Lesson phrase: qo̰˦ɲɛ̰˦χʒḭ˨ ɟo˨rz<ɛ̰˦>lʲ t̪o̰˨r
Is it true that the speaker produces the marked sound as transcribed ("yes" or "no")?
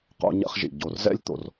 yes